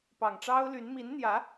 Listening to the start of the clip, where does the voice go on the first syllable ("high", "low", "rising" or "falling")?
low